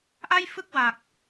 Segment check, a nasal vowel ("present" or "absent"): absent